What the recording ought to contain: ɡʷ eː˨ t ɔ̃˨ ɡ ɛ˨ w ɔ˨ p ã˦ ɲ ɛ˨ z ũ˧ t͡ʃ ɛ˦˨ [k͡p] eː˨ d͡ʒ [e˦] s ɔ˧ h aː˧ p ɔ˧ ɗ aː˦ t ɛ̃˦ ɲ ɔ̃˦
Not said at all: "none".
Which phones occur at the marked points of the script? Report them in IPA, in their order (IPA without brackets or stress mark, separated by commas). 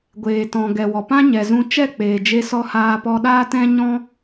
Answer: k͡p, e˧